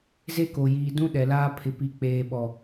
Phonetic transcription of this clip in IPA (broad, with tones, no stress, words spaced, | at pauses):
ze˦ko˨jiː˨ dũ˦ ɗɛ˨laː˦ pʰɪ˨pi˨k͡peː˨ɓɔ˨